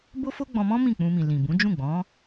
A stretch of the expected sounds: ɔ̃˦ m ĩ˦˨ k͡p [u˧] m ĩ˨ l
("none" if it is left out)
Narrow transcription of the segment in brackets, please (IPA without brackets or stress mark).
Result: ũ˧